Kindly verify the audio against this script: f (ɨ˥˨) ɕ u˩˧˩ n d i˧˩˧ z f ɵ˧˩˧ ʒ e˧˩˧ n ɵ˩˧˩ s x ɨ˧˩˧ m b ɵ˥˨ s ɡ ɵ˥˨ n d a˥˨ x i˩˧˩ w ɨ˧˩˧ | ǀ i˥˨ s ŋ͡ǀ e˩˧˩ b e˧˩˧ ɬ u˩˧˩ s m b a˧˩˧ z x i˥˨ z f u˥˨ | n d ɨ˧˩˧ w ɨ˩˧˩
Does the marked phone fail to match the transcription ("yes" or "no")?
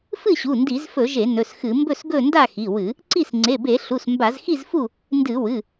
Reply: no